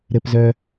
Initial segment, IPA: ɾ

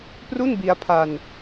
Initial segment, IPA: p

